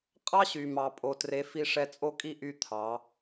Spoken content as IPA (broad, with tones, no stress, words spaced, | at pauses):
qʼɑ˦ɕy˨mɑ˨ pʼo˨tre˨˦fi˧ ʂɛ˧t͡sʼo˦kʼi˦ʔy˦˨ t̪ʰɑ˨˦